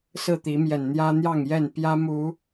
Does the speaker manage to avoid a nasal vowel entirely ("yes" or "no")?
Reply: yes